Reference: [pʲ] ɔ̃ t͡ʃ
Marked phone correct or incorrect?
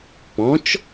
incorrect